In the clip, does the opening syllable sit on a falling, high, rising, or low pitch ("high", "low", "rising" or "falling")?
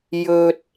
low